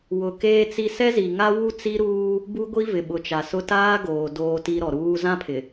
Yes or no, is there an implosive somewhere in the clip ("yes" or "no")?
yes